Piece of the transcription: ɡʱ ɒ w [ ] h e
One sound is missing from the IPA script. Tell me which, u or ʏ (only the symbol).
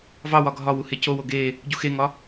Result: u